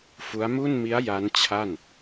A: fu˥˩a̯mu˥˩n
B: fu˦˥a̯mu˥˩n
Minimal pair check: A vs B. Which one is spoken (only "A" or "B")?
B